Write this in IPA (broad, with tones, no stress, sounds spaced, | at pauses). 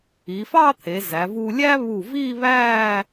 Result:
i˩˧ f ɑ˥˧ t̪ʰ e˩˧ z æ˩˧ v u˧ lʲ æ˥ β u˧˩ v i˥˧ β æ˥˧